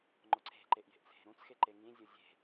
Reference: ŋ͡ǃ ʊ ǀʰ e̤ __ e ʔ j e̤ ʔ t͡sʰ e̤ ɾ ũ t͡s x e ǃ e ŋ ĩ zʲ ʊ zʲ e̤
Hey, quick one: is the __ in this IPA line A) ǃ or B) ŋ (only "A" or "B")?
A